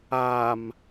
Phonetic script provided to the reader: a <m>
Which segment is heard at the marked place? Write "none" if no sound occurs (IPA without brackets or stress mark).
m